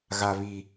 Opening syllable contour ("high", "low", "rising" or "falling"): low